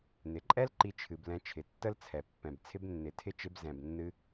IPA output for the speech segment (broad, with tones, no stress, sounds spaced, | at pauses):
n ɪ˨ ǃʼ ɛ˦ l ǃ i˧ t͡ʃʰ ɨ˨ b l ɛ̃˧ t͡ʃʰ ɪ˨ tː ə˦ l t͡sʰ ɛ˨ pː ɛ̃˨ b t͡sʰ ɪ˦ b nː ɪ˨˦ tʰ ɪ˦ t͡ʃ ɪ˧ b z ɛ̃˨ b nː ɨ˧